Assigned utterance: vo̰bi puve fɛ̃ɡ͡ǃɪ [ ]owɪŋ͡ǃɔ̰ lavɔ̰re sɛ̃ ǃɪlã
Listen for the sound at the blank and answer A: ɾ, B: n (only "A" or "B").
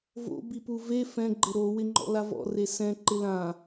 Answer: A